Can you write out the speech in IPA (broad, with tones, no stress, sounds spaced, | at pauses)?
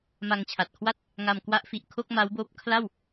m a˧ ŋ t͡ɕʰ a˨˩ t̚ kʰ w a˥˩ t̚ | ŋ a˧ m k w a˦˥ ʔ f i˨˩ ʔ kʰ o˥˩ k̚ m a˦˥ w b oː˦˥ p̚ kʰ l a˥˩ w